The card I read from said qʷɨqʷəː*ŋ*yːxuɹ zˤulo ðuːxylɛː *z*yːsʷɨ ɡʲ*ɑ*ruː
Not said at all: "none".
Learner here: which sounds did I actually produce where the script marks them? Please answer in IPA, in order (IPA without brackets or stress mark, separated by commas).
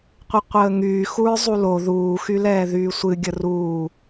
ŋ, ð, ə